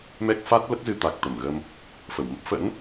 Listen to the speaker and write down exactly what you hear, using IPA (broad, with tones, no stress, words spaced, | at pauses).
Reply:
mɛ˦˥k̚ fa˦˥t̚lə˦˥t̚zɨ˧ t̪a˨˩k̚t̪ə˧˩mɣə˧m | fə˧˩wmə˦˥p̚ fə̰˧˥n